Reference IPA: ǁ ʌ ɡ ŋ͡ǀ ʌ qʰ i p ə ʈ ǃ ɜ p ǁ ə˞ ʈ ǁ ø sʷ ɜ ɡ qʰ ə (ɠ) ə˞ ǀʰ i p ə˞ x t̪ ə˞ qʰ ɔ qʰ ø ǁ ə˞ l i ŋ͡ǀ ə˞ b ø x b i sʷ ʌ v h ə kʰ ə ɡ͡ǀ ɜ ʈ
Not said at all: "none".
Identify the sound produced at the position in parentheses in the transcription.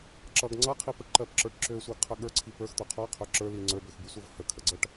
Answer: ɠ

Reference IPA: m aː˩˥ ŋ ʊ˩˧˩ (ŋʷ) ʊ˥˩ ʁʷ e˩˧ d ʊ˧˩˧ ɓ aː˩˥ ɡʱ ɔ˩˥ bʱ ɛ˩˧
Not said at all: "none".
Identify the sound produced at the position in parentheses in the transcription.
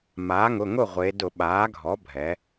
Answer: ŋ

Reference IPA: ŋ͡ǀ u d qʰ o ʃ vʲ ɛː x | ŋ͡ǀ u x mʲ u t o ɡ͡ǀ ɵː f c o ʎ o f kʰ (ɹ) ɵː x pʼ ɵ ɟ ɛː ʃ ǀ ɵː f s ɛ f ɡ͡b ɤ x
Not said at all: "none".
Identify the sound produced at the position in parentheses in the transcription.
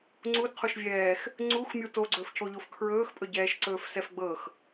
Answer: ɹ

